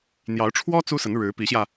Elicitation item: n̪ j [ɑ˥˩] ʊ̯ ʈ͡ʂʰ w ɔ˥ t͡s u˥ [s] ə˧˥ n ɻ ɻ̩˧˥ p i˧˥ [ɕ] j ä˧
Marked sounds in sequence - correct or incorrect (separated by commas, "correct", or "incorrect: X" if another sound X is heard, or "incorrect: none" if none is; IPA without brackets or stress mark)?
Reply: incorrect: ɑ˧˥, correct, correct